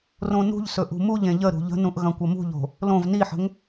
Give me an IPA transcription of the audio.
r õ n ṳ ʎ s ɵ ʔ ṳ m u ʎ ẽ ʎ ə ɾ ṳ ʎ ə̤ n ũ ʔ ɣ ɐ̃ kʷ ɐ m ṳ ʎ o̤ | l õ v n i ħ ə̤ ŋ

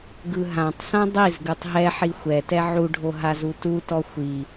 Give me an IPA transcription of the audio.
ɡ ɯ ɦ ã tˤ s ã dˤ i z ɡ ɯ tˤ ɦ ɛ ħ i xʷ ɛ t ɛ ʕ u ɖʱ o ɦ a z u t u t ɔ xʷ i

